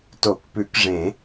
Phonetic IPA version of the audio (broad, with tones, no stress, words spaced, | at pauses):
to˨˩˦kpʉ˨˩˦kʐẽ˨˩˦